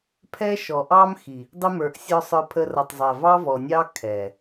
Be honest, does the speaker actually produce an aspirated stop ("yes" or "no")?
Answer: yes